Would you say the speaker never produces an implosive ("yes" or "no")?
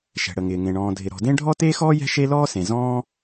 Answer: yes